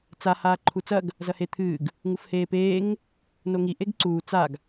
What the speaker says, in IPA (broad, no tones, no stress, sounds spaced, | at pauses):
t͡s a h aː ǃʰ u t͡s ɐ ɡ | z ɐ h e t̪ʰ ɨː ɡ | ŋ u f h eː p eː ŋ | n o ŋ i ʔ e ɡ ǀ uː t͡s a ɡ